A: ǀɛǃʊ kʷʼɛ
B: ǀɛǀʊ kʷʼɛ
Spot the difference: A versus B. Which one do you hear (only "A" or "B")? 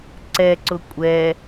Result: B